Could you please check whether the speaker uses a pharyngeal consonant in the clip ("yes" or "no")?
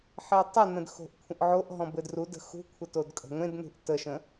yes